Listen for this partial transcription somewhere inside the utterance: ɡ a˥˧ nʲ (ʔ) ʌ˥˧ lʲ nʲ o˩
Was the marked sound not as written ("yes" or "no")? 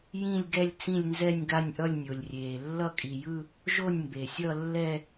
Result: no